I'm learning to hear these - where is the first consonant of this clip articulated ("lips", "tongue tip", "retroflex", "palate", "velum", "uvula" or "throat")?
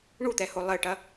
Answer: retroflex